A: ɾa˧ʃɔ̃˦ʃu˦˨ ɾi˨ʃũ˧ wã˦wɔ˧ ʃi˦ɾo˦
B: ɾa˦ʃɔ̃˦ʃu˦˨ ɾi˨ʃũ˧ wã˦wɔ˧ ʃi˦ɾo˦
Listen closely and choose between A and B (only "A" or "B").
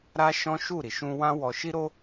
B